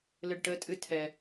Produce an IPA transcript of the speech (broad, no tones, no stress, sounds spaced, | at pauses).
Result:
l ɘ ɖ ʈ ə tʼ ɨ tʰ ɛ